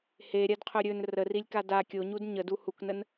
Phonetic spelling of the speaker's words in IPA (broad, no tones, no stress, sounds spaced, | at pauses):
h e ɾʲ a d qʰ ɵ ɾʲ ɵ n r ə r i lʲ k a d a kʲ o ɲ u d ɲ ə d u h u k n ə n